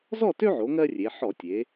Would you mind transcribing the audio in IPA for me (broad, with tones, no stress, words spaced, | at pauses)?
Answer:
zɔ˥˨tø˦ʕo˩˧ ŋɜ˦rʲe˩˧ ħɔ˧˩˧tʲe˩˧